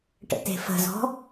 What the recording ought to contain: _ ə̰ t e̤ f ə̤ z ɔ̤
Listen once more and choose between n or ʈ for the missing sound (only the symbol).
ʈ